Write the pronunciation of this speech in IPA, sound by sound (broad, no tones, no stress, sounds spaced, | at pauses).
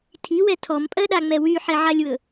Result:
tʰ i w ɛ tʰ ɔ m pʼ ɜ ɗ a ŋ͡m ɛ w y ħ ɛ ʕ a lʲ w ɵ